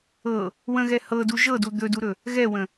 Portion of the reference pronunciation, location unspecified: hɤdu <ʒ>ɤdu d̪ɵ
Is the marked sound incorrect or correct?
correct